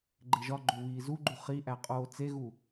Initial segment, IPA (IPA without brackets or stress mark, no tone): ɡ͡ǃ